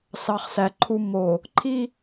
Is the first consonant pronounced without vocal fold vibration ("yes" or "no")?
yes